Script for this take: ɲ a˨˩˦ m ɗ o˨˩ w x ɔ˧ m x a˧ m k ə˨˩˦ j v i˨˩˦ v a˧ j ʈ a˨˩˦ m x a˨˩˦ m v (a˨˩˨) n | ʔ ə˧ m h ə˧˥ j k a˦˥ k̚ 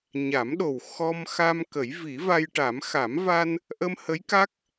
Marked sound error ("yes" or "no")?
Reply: yes